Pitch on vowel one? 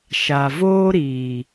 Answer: low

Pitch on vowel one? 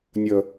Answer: low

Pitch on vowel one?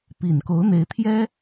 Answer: low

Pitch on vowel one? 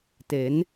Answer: rising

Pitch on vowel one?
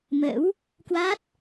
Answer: rising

